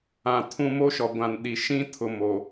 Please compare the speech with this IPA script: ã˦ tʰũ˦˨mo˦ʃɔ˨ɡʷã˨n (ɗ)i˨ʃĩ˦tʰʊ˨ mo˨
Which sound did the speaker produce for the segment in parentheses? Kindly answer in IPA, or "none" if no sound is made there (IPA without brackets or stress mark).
ɗ